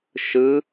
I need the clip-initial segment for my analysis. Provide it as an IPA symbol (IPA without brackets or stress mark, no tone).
ʃ